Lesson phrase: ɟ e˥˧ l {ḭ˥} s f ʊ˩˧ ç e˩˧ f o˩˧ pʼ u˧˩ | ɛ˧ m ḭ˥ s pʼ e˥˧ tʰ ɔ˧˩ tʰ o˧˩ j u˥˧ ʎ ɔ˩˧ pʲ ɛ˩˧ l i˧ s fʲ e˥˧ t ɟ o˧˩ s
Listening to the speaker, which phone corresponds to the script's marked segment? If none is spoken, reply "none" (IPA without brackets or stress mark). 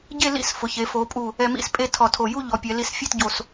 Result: ḭ˥˧